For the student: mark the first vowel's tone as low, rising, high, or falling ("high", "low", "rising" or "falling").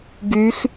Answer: rising